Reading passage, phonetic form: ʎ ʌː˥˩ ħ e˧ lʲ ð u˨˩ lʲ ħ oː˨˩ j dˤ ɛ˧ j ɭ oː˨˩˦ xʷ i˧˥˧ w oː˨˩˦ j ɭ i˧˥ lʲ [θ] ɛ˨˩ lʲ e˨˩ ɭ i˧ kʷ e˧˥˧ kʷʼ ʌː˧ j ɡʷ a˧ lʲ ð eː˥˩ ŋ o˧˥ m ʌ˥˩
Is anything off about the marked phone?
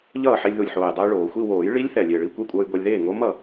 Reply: no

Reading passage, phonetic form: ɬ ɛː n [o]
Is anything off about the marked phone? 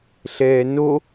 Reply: no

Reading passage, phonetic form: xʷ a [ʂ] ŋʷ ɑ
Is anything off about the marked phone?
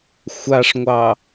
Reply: no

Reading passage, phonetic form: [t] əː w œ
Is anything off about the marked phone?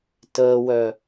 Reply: no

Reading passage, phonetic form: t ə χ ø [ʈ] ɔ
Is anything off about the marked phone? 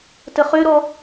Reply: yes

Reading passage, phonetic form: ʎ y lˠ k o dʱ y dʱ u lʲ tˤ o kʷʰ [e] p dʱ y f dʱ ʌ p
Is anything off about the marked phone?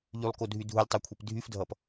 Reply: no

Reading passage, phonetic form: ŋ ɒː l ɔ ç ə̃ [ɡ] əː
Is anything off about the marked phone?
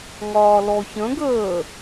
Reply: no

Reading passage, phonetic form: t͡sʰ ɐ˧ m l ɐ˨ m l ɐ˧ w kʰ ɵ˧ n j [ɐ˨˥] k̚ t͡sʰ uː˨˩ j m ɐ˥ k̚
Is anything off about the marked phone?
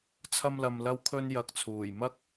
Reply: yes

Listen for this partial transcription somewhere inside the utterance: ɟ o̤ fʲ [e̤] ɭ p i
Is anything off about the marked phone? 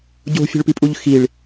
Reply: no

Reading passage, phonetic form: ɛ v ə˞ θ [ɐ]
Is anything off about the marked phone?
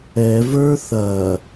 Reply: no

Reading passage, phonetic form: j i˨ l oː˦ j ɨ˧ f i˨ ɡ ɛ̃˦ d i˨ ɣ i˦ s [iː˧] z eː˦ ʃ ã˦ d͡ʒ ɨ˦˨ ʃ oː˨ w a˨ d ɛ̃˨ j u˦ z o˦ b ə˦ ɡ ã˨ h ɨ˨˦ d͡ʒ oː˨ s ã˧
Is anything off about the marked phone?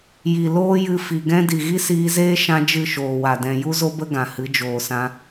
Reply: no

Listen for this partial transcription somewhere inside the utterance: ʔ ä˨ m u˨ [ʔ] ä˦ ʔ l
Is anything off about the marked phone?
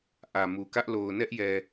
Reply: yes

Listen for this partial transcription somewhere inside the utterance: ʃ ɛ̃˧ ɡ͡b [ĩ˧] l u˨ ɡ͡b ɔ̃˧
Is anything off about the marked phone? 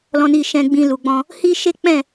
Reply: no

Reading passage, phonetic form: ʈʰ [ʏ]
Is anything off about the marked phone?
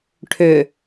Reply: no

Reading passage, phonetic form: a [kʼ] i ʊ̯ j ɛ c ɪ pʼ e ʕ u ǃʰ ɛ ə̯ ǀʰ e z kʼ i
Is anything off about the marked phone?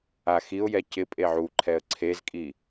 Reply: yes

